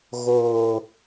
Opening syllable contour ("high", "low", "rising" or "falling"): low